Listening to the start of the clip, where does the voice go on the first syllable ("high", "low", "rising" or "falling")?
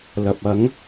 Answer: low